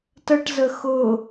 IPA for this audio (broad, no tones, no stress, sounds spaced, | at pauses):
t ə ʈ z ə x ʊ